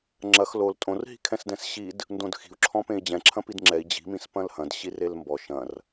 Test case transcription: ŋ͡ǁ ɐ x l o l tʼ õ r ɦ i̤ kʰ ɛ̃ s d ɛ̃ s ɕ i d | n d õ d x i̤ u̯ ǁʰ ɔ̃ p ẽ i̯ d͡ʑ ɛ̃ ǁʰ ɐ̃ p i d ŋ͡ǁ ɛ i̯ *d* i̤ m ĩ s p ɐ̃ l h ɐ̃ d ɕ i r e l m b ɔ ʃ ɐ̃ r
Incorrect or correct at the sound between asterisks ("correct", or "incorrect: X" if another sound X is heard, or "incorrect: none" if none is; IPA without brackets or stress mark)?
incorrect: d͡ʑ